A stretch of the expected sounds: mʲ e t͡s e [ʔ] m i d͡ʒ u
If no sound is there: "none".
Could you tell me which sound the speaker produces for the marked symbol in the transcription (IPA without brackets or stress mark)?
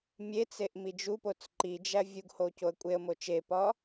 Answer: ʔ